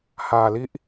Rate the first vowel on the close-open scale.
open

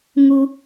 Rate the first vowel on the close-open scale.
close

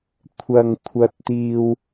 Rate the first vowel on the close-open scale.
open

